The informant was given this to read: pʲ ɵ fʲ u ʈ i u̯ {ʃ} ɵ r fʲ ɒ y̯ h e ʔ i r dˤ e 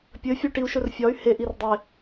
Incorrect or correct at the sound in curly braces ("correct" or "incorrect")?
correct